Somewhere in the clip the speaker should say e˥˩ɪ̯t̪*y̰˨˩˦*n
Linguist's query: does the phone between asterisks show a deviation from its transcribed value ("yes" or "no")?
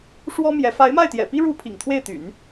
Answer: no